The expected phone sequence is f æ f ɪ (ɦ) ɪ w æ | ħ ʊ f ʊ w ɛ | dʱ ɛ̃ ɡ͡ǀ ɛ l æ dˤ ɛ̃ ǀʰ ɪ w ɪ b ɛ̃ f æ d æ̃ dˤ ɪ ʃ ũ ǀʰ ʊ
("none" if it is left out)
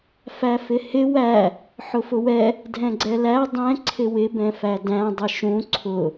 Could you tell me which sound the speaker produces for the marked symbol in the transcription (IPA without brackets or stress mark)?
h